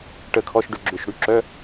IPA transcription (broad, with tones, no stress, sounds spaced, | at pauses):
ʈ ə˦˨ kʰ ɔ˧˥˧ ʃ ɖ ʏ˦˨ ɡ͡ǁ ʏ˦˨ ʃ ɽ y˦˨ ǁ œ˧˥˧